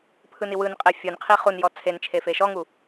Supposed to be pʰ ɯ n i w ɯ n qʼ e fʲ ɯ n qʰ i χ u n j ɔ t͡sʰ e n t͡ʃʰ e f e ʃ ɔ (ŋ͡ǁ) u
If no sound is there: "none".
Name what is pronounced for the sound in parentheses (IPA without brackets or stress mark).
ŋ